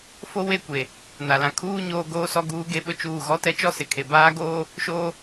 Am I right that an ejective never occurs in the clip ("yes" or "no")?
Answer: yes